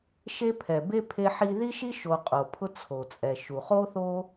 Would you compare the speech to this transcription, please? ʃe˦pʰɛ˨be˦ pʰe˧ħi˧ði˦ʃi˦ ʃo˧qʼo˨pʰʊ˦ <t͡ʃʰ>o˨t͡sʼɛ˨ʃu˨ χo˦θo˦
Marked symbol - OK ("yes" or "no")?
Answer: no